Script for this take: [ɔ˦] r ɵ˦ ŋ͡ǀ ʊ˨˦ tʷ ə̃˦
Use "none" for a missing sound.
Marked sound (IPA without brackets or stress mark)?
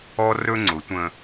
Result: ɔ˦